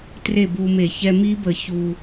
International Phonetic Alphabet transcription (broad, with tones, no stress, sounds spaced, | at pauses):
t r e˥˨ b u˧ m e˧˩˧ ç ɛ˧ m i˦˥ b ə˧˩˧ ç u˨˩